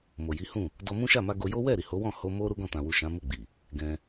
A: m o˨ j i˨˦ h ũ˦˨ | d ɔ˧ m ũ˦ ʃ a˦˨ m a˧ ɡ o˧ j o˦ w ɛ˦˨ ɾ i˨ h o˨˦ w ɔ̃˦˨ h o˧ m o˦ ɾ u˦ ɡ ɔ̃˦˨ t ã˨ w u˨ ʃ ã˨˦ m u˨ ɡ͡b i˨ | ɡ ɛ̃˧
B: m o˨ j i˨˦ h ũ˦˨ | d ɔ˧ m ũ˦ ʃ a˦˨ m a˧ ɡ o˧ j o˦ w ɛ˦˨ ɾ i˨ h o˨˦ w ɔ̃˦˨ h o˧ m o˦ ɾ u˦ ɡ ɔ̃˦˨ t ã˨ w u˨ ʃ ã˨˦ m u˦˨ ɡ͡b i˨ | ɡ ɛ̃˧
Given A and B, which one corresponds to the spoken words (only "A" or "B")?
B